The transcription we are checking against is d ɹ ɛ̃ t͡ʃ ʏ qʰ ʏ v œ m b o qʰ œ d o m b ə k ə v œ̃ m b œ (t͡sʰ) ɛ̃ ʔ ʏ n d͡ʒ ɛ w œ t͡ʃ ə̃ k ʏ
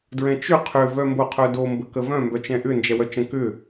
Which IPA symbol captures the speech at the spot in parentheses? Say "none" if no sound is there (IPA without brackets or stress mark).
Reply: t͡ʃ